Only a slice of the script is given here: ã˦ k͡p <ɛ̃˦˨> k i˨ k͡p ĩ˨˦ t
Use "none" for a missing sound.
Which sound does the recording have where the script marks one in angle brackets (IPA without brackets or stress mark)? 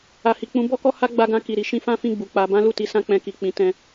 ɛ̃˧